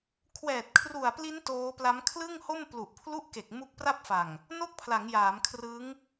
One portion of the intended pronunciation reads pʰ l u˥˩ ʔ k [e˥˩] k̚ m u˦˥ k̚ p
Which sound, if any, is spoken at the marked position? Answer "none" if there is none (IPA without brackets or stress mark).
e˨˩